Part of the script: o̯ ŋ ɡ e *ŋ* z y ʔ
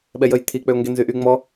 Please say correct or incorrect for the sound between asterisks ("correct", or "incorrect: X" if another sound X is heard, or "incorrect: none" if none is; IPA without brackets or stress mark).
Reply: incorrect: n